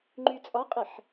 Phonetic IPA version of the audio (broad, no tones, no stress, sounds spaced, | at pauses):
ŋ͡ǃ y t͡sʼ ɒ qʼ ɛ ħ